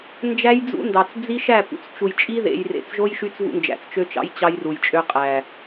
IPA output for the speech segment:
nd͡ʒæ˦jd͡zṵ˦ndɑ˨t͡s d͡zi˦ʃæ˦˨pṵ˨t͡s t͡ʃu˨jt͡ʃʼi˦ðḛ˨j rḛ˨t͡sʒo˦j ʃy˦t͡svṵ˦nd͡ʒæ̰˨t͡s t͡ʃø˦t͡ʃɑ̰˦j t͡ɕɑ˦jru˨jt͡ʃʼø˦ qʼæ˨

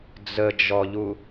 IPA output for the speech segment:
d͡zəd͡ʒɔʎu

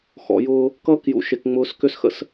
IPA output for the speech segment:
xɔ̰˨jʊː˦ | kʌː˦kjṵ˨ʃe˨k ŋ͡mʊː˨s kʏ˦sxə̰˦s

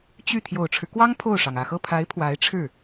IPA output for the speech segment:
t͡ɕy˥˩ t̪ʰjo˨˩ʊ̯ʈ͡ʂʰɻ̩˦kwɑ˥ŋ pʰo˥˩ʊ̯ʂɑ˩ŋ ä˨˩xɤ˥˩pʰa˧˥ɪ̯ pʰwa˧˥ɪ̯ʈ͡ʂʰɻ̩˥˩

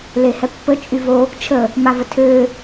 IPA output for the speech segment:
lehɛpːə t͡ʃʼyvo | t͡ʃʰə | mavətʰø

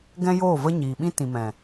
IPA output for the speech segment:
ɡɛ̃˦joː˦˨və˦ ɲiː˨ɓĩ˦ tĩ˨mɛ̃˨

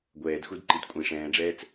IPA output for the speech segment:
ɡʷɛːdxudǃid kʷʼĩ ʂɛ̃ːɖ͡ʐɛːt͡s

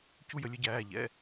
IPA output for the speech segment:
cu˦jə˧˩˧lʲə˩˥ɟæː˩˧˩ ʎɛ̰˩˧˩

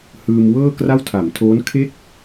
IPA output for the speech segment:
hɯː˧mwɤː˥˩ kra˥˩w tʰa˩˦mtʰoː˦˥nkʰe˥˩k̚

